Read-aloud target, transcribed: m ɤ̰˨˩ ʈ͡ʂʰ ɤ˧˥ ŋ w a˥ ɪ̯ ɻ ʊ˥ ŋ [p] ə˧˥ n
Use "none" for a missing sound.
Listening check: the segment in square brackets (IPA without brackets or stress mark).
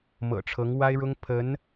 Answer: pʰ